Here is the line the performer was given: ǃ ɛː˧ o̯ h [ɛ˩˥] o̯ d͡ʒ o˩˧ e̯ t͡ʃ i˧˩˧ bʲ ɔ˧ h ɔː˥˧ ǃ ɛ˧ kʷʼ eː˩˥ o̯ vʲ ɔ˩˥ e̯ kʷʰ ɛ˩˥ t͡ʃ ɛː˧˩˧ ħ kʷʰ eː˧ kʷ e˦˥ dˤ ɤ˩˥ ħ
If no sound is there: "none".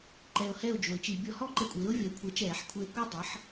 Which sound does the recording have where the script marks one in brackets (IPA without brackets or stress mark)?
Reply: ɛ˥˧